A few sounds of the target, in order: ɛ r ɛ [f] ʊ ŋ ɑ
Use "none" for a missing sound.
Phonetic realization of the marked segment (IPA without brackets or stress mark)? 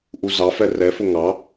f